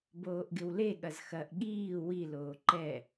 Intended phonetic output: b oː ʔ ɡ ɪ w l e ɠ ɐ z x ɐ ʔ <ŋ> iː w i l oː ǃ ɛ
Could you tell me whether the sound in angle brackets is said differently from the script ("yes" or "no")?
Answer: yes